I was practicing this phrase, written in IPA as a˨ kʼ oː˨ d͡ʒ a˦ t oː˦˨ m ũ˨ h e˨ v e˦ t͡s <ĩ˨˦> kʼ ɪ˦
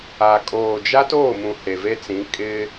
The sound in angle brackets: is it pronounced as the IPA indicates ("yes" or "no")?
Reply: yes